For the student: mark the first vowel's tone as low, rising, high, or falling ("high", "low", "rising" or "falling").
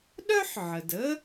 high